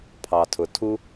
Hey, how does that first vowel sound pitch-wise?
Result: low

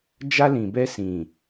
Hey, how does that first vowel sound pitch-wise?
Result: high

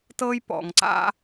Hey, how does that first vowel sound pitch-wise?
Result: high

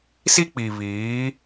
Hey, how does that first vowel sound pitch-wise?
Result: high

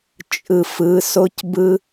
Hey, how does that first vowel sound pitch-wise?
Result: low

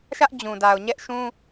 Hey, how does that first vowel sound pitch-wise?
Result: high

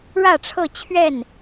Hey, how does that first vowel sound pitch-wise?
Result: falling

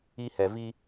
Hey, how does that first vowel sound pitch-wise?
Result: high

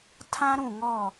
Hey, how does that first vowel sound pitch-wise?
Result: high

